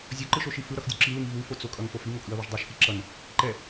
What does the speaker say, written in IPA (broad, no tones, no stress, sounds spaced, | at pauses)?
zʲ o ǃ ɯ ʃ o ʃ i f ɯ ɾ ʌ x dʲ u ǁ i l ɯ ŋ v u f o t͡s o kʼ ʌ ŋ f o f i ŋ o kʼ ɯ ɐ̯ β i ʒ dˤ u ʃ x i ǁ ʌ n | ǃ ɛ